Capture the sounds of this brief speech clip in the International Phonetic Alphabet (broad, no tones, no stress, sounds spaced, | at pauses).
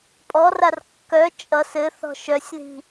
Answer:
pʼ ɔ r a r kː œ t͡ʃʼ ʌ s ɘ θ ɔ̤ ʃ œ sʲ ð i̤